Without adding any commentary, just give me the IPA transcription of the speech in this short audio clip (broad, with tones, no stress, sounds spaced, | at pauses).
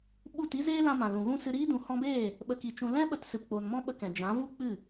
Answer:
ɓ u˦˨ t i˦ z eː˦ l ã˧ m ã˨ l ũ˨ ɣ ũ˦ s ɨ˧ ɾ iː˦ d ũ˨˦ h ɔ̃˧ b eː˦˨ | ɓ ə˧ k i˨˦ t͡ʃ ũ˧ l ɛ̃˦ ɓ ə˧ t s ɨ˨ p k͡p o˨ n m ɔ̃˦ ɓ ə˧ k ɛ̃˨ d͡ʒ ã˨˦ v u˦ k͡p ɨ˦˨